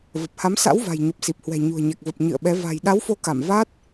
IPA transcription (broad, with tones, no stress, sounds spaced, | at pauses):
v ə˨˩ p̚ h a˨˦ m s a̰˧˥ w v a̤˨˩ j ɲ ə˨˩ p̚ s i˨˩ p̚ h w ɛ̤˨˩ ɲ ṳ˨˩ ə̯ ɲ ɛ˨˩ k̚ v ə˨˩ p̚ ɲ ɨ̰˧˨ ə̯ ɓ ɛ˨˦ v a̤˨˩ j ɗ a˨˦ w f o˨˦ k a˧˩ m v a˦˥ t̚